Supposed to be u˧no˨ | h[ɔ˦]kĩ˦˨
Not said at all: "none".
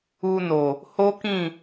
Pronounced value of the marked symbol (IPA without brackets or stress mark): o˦